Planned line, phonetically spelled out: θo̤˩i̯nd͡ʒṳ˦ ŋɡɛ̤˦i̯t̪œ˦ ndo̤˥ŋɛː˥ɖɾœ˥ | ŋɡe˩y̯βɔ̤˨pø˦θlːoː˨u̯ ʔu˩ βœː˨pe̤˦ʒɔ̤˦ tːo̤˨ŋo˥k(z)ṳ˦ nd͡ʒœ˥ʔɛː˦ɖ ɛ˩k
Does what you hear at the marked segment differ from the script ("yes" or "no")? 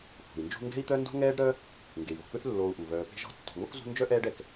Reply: no